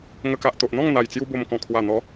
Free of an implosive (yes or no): yes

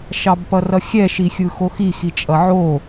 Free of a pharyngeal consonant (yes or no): no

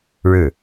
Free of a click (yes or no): yes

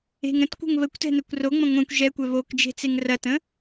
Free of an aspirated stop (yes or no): yes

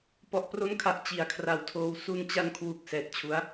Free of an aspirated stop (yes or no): no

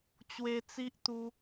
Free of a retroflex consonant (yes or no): yes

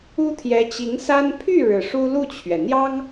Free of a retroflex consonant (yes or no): no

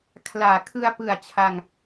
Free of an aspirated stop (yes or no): no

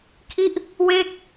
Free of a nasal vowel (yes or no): yes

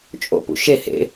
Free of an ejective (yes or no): no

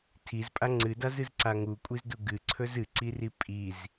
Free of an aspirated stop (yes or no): no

